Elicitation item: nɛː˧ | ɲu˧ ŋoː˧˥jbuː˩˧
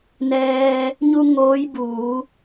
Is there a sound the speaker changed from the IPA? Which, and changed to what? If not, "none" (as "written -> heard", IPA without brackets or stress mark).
none